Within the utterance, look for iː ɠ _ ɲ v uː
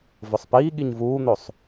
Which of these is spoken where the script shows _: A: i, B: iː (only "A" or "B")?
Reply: A